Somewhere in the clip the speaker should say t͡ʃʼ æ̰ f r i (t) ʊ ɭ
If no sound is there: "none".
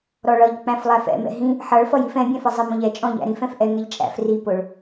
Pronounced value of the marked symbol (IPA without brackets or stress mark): p